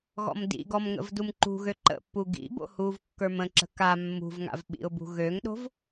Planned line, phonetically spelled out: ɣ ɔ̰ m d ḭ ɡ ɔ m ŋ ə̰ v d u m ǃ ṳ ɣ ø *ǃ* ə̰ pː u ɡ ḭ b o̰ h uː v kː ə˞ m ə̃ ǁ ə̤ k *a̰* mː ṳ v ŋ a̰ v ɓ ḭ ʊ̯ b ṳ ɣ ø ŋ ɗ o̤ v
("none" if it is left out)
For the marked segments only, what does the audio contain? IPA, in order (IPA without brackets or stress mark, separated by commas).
ǃ, a